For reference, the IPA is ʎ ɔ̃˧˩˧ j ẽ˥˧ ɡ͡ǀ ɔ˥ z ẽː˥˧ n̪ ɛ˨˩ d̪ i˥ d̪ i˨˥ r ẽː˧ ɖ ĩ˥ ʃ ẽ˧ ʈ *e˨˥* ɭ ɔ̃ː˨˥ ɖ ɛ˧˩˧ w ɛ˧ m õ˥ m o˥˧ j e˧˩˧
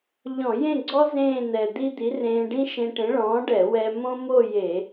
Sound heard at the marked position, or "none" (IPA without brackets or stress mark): ẽ˨˥